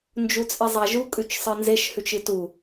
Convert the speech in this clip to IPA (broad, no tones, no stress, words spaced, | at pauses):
nd͡ʒut͡sʼizˤaʒu kʼʉt͡ʃsˤɨnzeʃ hʉt͡ʃɨtu